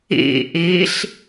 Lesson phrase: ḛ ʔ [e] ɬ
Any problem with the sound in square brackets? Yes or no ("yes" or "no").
no